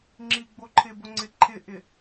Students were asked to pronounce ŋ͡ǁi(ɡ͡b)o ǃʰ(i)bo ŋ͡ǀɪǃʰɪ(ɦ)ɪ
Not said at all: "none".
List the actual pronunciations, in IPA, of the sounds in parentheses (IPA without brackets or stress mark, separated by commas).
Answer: ɡ͡b, ɪ, ʔ